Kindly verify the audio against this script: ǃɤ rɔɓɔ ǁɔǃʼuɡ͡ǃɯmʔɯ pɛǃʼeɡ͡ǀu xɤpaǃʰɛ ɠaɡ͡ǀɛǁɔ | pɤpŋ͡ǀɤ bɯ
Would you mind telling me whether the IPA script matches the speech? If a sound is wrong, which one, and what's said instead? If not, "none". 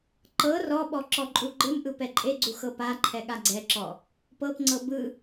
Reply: none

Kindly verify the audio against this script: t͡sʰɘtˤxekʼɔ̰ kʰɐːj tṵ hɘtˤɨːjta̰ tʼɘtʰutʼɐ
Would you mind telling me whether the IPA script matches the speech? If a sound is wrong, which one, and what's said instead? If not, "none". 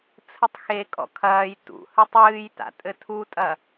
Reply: none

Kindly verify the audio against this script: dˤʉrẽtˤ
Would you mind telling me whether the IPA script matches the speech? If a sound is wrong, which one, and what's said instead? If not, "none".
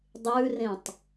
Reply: none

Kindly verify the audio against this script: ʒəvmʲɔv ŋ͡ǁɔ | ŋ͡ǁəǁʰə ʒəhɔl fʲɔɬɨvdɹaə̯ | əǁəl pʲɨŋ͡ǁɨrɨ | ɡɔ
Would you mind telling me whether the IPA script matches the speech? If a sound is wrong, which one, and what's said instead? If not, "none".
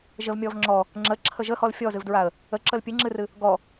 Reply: ɬ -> z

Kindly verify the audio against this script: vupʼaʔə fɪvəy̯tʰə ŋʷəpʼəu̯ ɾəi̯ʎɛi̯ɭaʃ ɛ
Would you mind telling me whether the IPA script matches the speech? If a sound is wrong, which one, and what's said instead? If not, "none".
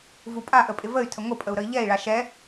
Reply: f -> pʼ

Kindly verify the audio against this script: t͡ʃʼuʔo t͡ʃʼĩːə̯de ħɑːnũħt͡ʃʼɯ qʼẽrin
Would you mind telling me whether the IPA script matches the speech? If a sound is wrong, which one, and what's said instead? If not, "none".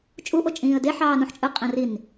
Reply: none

